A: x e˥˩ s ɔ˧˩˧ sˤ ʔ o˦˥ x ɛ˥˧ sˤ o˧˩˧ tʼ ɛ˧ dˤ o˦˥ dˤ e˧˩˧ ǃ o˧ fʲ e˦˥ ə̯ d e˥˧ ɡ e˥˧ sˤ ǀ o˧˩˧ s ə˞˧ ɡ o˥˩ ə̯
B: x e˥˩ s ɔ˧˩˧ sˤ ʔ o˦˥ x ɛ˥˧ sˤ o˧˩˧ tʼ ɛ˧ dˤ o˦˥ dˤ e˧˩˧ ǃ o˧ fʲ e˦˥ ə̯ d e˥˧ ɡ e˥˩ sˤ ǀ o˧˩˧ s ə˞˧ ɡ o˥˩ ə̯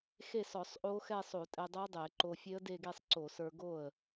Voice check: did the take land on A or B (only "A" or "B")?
A